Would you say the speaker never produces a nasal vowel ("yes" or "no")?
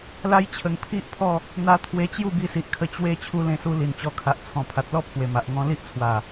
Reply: no